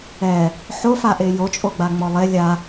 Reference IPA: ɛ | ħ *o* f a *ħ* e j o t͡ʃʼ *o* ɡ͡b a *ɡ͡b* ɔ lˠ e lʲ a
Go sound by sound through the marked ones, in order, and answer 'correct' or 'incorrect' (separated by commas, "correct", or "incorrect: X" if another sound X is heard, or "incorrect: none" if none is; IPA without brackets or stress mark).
correct, incorrect: ʔ, correct, incorrect: ŋ͡m